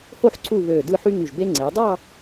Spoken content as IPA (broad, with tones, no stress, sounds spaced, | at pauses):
h o˥˧ ħ ǀ u˥˧ β ø˧˩ d ɯ˥˧ ħ y˥ ŋ y˧˩ ʒ b e˥ ŋ͡ǀ e˩˧ dˤ ɑ˥˧